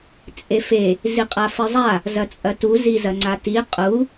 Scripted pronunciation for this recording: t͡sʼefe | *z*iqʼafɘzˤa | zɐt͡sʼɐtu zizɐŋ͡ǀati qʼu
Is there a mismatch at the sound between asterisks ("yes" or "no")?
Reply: no